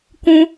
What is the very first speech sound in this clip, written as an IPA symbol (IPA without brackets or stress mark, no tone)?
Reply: k